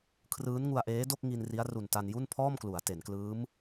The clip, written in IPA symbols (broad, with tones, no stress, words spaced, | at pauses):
kʰrɯː˦˥nŋu˧a̯ʔeː˦˥do˥˩k̚ ŋi˧nri˦˥a̯ ru˨˩nta˧n ju˥˩npʰɔː˥˩mklu˩˦a̯ te˩˦nklɯː˦˥m